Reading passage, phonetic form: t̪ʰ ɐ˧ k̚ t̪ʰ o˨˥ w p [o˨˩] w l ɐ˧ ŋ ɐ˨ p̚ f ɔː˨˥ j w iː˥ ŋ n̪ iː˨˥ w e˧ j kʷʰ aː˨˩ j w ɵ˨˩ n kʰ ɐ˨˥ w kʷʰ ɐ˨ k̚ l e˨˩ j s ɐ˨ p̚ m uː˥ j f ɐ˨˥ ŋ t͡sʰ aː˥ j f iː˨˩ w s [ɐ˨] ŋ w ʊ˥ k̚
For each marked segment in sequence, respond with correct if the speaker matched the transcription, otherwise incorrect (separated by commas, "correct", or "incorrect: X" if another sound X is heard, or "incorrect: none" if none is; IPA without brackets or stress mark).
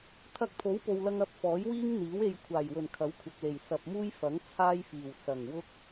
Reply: incorrect: o˨, incorrect: ɐ˨˩